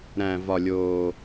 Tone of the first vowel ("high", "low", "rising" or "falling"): low